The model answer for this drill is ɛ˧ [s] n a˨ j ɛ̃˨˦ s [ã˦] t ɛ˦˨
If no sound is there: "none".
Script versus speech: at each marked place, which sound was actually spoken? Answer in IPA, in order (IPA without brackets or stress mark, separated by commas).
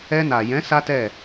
none, a˦